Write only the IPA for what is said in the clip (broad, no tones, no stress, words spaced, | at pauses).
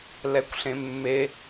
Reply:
lɛkʷɬẽmːe